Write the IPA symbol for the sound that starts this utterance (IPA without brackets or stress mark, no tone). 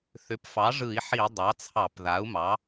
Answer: θ